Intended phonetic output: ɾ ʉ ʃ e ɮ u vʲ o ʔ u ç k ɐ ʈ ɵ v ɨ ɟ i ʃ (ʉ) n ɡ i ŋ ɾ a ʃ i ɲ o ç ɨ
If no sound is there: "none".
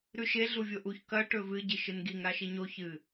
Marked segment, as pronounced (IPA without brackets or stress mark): ɨ